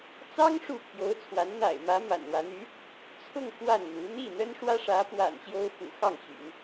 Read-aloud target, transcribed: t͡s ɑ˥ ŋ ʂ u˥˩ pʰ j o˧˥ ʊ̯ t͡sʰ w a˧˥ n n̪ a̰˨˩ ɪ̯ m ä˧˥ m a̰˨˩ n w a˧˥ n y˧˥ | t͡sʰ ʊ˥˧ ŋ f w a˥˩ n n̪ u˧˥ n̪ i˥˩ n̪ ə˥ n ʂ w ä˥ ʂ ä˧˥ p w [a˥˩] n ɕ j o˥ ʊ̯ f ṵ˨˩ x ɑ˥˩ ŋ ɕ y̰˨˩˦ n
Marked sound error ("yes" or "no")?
yes